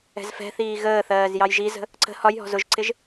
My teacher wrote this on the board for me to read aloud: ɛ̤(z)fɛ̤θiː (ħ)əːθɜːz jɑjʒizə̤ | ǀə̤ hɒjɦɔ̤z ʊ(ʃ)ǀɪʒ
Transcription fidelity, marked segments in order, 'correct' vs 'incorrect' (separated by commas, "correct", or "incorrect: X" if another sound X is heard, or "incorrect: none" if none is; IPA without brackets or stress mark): correct, incorrect: ɣ, incorrect: ʒ